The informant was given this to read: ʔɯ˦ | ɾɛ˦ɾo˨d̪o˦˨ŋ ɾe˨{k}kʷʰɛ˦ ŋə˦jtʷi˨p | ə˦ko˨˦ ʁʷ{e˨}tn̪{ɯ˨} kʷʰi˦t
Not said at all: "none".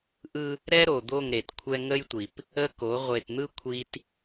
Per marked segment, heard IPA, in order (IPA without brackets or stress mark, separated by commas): t, e˨, ɯ˦